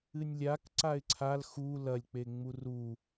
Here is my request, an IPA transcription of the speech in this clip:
ɨnʲlʲak ǀaɪ̯ǀʰal xu lɐlʲk͡peŋ͡mur u

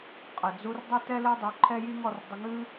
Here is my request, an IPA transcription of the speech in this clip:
qʼə˨d͡zu˧r dˤo˦tɛ˦lɘ˦ dˤu˧ǃʰɛ˦ji˦ŋ ɔ˧rdˤə˧ŋɨ˦

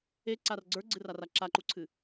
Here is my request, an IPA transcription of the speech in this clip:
eǀar ɡ͡ǀə˞ɡ͡ǀɨrara ǁaǃuǀʰɨ

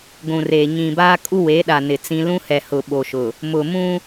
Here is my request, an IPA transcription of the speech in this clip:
ɡʷũ˨reː˨ ɲĩ˨baː˦kʼu˦ we˨˦ɗa˨ nɪ˨t͡sĩ˦ lũ˦hɛ˨hʊ˨ ɓo˨ʃʊ˨ | mʊ˨mũ˦

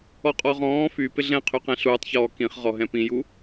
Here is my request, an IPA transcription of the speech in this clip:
ɔqʼɔʁɔ̃ː fy pɪɮɛ̃qʰyqɛ̃ ɬuːtˤçɔː kĩχ ʁɔɦɛ̃pĩju

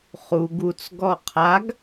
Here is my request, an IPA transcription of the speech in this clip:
χu ɡut͡sɡɔ qʰaɡ

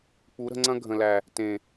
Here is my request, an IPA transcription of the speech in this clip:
k͡pu˨˦ɾə̤˧ŋ͡ǀɐ̃˦ ɡʱə̃˨læ˨ | tẽ˨

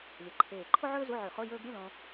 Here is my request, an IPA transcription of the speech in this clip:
lʲɐ˧˩ǃʰeː˧˩ ǃʰo˥ʕɵː˥zu˧˥˧ ʕʉ˧˩˧χo˧˥˧ jɵː˥ɡ ɾʲɨ˧˥˧lõ˧

